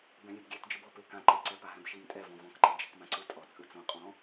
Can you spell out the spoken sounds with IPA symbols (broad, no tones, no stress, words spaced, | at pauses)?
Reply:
bɛ̃lʲebɡʲɛt d͡ʒɯbɔ pekãǃe ǀɛpaɦɛ̃bʃim tʼɛvɔ̃ vɔ̃kǃe d͡ʒɛkmãǀɯ tʼɔ t͡sʼɯt͡sõ qʼɔ̃